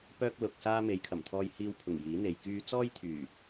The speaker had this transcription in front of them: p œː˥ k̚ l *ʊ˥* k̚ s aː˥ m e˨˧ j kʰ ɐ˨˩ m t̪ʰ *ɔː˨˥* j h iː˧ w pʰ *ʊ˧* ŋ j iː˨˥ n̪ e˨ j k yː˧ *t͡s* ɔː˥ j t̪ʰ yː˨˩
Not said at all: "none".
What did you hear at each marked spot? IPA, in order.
ʊ˨, ɔː˧, ʊ˨˩, t͡s

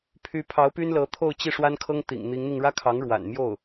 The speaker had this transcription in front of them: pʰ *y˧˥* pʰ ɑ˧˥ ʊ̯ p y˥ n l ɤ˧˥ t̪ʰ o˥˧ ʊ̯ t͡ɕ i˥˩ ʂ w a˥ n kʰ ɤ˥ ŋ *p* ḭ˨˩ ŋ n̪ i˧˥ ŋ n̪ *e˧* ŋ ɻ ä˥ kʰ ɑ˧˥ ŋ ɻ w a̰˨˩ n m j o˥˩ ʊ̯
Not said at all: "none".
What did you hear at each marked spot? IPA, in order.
y˧˥, t̪, i˧

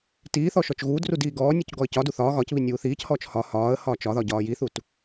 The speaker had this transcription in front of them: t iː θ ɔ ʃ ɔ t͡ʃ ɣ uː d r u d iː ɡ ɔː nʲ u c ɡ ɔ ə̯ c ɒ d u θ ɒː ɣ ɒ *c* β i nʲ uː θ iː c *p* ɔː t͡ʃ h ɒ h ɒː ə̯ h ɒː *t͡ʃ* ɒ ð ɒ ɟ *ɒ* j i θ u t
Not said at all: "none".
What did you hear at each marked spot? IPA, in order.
c, h, t͡ʃ, ɒː

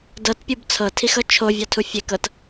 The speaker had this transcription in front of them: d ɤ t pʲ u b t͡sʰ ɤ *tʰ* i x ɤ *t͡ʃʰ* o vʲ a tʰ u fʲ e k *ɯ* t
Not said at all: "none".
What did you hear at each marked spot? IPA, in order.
tʰ, t͡ʃʰ, ɤ

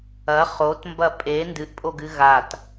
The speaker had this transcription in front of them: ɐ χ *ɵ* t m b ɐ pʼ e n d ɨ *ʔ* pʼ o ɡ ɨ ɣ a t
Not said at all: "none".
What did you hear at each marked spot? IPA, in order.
o, ʔ

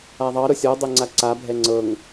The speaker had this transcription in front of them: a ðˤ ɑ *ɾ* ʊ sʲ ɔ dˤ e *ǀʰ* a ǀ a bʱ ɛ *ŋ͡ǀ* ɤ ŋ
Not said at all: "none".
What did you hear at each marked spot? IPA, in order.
ɾ, ŋ͡ǀ, ŋ͡ǀ

